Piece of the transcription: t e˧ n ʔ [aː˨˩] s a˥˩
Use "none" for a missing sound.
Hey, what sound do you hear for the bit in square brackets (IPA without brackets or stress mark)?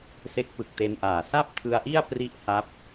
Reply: aː˨˩